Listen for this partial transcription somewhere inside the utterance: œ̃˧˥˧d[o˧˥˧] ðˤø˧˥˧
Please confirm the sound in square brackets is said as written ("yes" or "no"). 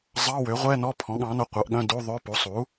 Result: no